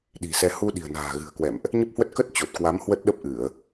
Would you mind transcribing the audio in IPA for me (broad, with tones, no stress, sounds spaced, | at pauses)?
ɗ i̤˨˩ s ɛ˧ h u˧ ɗ i̤˨˩ ə̯ n a̤ː˨˩ ɣ ɨ̤˨˩ ə̯ k w ɛ̰˧˨ m ʔ | ɲ ə˦˥ p̚ h w ə˦˥ t̚ k ə˦˥ t̚ t͡ɕ o˨˩ t̚ k w a˨˦ m h w ə˦˥ t̚ ɗ ə˦˥ p̚ ʔ ɨ˧˩˨ ə̯